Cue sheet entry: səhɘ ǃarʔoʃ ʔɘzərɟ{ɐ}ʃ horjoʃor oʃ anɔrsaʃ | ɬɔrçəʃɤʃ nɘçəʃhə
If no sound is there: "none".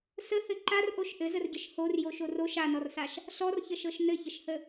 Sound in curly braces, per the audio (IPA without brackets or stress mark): ə